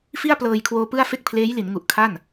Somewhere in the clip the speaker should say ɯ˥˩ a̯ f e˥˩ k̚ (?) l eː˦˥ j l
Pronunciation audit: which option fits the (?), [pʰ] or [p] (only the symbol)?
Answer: pʰ